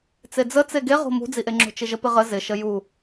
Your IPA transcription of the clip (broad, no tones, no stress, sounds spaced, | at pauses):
t͡s e d͡z ə t͡s e ɡ e ʁ o̤ m ṳ d͡z i ʔ e ŋ͡ǁ o̤ t͡ʃ ɪ ʒ ə p ɪ ʁ ə z ɪ ʃ ə j u